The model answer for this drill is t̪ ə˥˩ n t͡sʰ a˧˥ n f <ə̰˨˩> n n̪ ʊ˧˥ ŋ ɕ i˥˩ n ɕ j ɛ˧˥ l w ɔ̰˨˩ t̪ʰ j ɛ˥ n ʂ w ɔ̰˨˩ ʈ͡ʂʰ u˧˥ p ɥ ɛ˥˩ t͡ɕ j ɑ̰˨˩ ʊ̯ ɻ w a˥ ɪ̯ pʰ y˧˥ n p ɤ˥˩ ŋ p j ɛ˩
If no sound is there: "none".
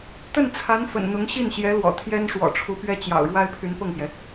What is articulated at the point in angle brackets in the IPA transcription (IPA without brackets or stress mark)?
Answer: ə̰˨˩